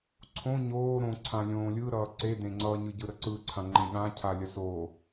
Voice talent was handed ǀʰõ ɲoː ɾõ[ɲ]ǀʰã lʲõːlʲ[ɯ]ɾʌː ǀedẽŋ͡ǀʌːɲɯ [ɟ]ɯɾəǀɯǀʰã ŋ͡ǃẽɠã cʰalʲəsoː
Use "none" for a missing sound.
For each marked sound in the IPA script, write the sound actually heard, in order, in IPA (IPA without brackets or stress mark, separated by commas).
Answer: none, ɯ, ɟ